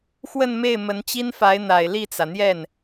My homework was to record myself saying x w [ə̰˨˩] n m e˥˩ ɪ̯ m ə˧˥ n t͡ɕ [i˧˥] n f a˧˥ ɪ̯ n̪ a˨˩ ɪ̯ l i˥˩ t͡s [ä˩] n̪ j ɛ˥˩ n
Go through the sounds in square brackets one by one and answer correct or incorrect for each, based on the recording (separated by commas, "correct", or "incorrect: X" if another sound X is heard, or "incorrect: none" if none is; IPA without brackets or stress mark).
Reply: incorrect: ə˥˧, incorrect: i˥, correct